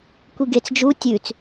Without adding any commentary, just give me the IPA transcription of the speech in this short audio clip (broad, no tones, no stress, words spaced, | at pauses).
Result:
kʷiɡet͡s d͡ʒu tʲʉt͡s